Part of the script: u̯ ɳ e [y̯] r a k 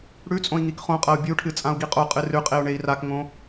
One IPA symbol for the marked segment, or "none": i̯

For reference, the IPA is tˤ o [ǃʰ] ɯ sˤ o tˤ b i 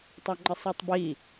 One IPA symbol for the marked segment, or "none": ŋ͡ǃ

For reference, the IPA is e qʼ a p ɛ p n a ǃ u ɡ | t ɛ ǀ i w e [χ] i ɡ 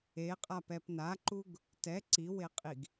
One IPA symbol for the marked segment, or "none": qʼ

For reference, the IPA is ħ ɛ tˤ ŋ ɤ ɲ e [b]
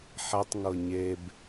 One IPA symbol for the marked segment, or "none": b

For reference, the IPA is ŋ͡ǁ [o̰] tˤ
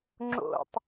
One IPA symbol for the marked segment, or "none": o̰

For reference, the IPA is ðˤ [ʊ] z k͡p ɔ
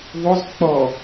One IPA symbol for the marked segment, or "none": ʊ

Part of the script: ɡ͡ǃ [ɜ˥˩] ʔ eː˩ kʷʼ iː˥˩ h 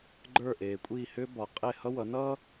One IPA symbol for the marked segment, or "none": ə˞˥˩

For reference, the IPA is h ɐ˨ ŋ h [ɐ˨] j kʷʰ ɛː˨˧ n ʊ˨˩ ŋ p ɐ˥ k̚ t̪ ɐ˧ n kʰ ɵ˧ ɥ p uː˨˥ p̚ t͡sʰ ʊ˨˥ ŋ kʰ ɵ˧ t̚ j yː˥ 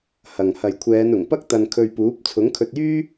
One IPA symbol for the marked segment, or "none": ɐ˨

